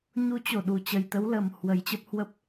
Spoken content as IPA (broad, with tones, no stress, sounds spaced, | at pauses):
ɲ u˨˦ t͡ɕ o˧˩ ɗ u˨˩ t͡ɕ ə˨˩ j t̪ ə˨˦ w l ə˨˩ m h w ə˨˩ j t͡ɕ ə˦˥ p̚ h w ə˦˥ p̚